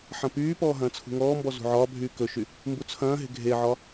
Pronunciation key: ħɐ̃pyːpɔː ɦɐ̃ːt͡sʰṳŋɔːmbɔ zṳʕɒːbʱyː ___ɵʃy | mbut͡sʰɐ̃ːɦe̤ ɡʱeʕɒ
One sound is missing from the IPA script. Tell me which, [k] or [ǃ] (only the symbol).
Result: k